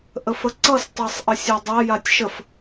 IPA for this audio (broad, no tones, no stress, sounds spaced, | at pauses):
ʔ ə f ə ǀ ʌ s tˤ e sˤ ʔ ə sʲ a dˤ a j a tʲ ʃ ə f